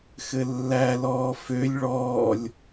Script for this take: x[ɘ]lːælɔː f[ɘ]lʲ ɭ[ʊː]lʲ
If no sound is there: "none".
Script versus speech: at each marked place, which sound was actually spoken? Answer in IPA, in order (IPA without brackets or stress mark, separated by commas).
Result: ɘ, ø, ɔː